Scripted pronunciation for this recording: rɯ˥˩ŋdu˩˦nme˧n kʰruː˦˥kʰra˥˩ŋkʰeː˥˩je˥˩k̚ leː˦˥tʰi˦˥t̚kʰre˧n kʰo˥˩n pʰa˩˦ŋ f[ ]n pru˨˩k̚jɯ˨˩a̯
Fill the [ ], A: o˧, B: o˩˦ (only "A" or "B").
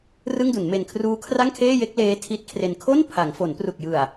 B